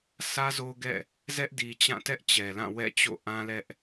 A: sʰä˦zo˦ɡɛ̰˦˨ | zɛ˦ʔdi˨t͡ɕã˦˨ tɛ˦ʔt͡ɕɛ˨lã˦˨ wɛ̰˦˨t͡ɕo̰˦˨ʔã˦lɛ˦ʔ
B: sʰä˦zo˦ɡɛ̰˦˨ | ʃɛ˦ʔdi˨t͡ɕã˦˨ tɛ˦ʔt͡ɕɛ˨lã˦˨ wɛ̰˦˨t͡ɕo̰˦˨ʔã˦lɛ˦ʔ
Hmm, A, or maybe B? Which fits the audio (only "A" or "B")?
A